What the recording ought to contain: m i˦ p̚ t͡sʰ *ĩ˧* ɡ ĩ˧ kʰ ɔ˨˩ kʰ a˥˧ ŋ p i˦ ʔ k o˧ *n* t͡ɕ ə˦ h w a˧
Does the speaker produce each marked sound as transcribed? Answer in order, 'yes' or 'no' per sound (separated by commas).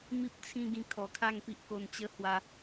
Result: no, yes